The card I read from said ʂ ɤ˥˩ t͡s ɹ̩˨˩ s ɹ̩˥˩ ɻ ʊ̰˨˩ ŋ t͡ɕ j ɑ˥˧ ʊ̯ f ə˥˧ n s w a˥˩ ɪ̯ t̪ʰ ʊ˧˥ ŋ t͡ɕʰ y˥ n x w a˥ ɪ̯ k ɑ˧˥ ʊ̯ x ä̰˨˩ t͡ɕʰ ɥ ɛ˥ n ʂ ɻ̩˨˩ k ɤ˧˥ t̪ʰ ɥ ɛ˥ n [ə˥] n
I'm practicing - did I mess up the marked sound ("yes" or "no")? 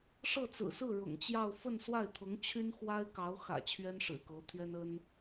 no